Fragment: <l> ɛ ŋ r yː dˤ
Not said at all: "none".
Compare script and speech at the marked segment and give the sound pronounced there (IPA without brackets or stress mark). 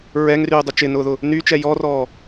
ɹ